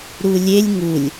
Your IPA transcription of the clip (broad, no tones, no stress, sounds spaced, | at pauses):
ɾ u lʲ e lʲ ŋ u lʲ